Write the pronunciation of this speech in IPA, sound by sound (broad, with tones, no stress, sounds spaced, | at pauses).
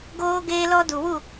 ɡ oː˦ ɡ eː˦ l ɔ˦ d u˨ w u˦˨